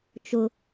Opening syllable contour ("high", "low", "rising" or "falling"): low